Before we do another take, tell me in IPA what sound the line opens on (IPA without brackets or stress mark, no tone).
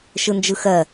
ʃ